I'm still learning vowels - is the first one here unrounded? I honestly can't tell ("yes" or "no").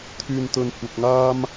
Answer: no